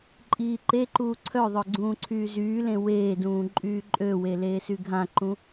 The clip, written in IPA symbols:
ǃʼ iː ǃ e ǃ uː ǀʰ œ ðˤ œ ɡ͡ǀ ũː ǀʰ yː z yː l ẽ w eː d ũː ǃʼ yː ǃʼ ø w e l eː s y ɡʱ ã ǃ ũ

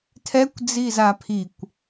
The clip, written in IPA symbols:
tʰ ɛ kʷ d͡z i z a pʰ i kʷ

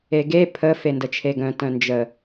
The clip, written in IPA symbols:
e ɡ e pʰ ə f e n d ə t͡ʃʰ e ɡ œ̃ t œ̃ n d͡ʒ ə

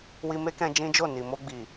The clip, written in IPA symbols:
w i˧ m e˦ k ɛ̃˧ d͡ʒ ĩ˦ d͡ʒ o˦˨ n i˨ m o˧ ɡ͡b i˨

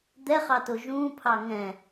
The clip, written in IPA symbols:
d̪ ɛ χ ɑ t o ʒ ũː pʰ ɑ ŋ ɛ̃

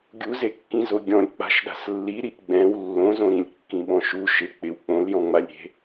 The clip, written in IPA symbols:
ɡʲ u z e kː ĩ z o ɡʲ ɔ̃ lʲ k͡p a̤ ʃ ɗ a̤ s lː i ɾ i ʔ ɡ͡b ɛ̃ w lː õ z õ ɾ ĩ lʲ kː ĩ ɓ ɔ̃ ʃ u ʃ ɪ k͡p ɪ w k͡p õ l j ɔ̃ ŋ͡m a lʲ ɾʲ e̤

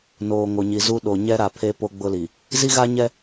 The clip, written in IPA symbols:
n oː˨ ŋ o˨ ɲ i˨ z u˦ ɗ o˨ ɲ ɛ˦ ɾ a˨ pʰ e˦ p o˦ ɡ͡b ʊ˦ l i˨ | z i˦ ɣ a˦ ɲ ɛ˦

